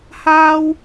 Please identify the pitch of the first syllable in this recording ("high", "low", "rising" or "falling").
high